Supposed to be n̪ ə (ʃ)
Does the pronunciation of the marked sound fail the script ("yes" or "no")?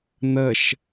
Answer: no